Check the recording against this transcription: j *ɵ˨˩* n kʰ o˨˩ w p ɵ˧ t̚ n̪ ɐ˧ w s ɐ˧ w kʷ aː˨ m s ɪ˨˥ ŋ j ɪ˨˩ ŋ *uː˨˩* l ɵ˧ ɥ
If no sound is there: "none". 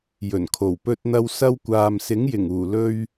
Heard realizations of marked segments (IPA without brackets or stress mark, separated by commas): ɵ˨˩, uː˨˩